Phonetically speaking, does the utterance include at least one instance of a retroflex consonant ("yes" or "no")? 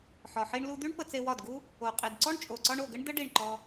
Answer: yes